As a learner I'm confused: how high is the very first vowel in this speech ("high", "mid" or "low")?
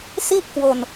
high